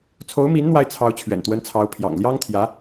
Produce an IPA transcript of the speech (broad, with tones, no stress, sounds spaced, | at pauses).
t͡sʰ o˧˥ ʊ̯ m i˧˥ n n̪ w a˥˩ ɪ̯ t͡sʰ ɑ˧˥ ʊ̯ t͡ɕʰ ɥ ɛ̰˨˩ n t̪ w ə˧˥ n t͡sʰ ɑ˧˥ ʊ̯ pʰ j ɑ̰˨˩ ŋ l j ɑ˥ ŋ t̪ʰ j ä˧˥